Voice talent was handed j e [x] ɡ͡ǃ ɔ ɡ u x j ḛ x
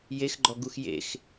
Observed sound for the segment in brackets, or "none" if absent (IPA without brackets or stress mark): x